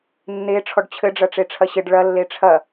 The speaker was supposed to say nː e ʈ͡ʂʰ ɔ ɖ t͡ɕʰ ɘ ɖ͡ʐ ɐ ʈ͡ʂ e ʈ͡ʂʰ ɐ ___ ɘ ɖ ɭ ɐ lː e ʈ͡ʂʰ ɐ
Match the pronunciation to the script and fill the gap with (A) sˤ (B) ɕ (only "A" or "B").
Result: B